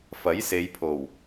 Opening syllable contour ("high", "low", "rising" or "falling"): rising